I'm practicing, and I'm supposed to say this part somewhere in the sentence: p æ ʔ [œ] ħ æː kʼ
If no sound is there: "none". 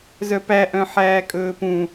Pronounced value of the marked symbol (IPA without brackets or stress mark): œ̃